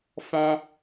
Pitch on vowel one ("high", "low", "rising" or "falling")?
high